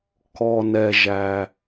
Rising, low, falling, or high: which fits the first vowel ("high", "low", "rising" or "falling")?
low